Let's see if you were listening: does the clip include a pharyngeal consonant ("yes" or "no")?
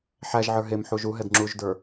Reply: yes